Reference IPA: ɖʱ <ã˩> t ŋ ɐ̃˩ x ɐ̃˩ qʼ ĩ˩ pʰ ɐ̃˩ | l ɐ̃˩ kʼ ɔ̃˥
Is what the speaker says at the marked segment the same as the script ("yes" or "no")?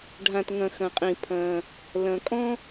yes